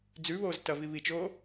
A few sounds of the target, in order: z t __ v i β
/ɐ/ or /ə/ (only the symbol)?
ɐ